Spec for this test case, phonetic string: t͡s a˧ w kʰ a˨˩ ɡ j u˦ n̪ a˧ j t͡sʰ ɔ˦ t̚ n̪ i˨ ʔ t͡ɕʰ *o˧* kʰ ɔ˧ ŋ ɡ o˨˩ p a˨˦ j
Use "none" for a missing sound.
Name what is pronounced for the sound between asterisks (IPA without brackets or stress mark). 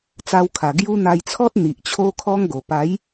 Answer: o˧